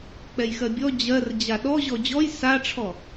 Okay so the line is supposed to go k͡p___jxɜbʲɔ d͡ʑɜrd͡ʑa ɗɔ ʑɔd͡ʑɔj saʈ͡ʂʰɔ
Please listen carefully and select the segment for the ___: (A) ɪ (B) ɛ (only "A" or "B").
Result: B